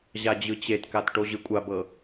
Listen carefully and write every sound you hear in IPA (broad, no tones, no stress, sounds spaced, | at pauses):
ʑ a d͡ʑ ɯ t͡ɕ e t k a t ʈ o ʑ ɯ kʷʼ a b ɤ